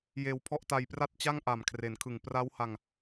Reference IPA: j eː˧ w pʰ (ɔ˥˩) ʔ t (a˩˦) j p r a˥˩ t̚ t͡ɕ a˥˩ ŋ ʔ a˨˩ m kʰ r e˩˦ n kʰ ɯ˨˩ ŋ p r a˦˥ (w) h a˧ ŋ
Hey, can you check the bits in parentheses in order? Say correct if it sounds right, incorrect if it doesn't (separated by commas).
correct, incorrect, correct